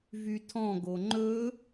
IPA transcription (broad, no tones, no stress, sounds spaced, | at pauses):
v y tʰ ɔ̃ ɡ o ŋ͡ǃ ɵ